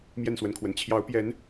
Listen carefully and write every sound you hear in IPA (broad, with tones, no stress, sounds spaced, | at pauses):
m j ɛ˥˨ n s w ə˨˦ n kʰ w ə˨˩ n t͡ɕʰ j ɑ˨˦ ʊ̯ p j ɛ˨˦ n